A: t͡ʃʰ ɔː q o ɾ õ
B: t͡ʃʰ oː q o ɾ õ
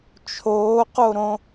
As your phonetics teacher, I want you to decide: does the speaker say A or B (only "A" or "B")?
B